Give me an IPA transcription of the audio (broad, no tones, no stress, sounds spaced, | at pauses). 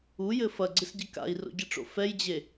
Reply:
u j ɘ f ɐ ɡ͡ǀ ɨ s ɟ ɘ k a̰ i̯ r o̰ ɟ ɨ ʈ͡ʂ o̰ f ɛ j d͡ʑ e